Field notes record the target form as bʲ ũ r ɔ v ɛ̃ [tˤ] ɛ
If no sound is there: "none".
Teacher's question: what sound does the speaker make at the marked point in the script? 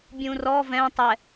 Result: tˤ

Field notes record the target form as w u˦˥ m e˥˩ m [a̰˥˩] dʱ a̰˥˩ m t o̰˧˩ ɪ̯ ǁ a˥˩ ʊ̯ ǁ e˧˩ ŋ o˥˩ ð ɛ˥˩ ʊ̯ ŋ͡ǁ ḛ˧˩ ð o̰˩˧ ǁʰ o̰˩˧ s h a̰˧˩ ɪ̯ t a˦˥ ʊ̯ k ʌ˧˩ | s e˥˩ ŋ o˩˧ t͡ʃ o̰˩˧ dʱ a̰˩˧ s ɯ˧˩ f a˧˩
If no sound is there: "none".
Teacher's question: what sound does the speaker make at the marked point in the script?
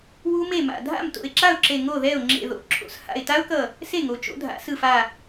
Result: a̰˧˩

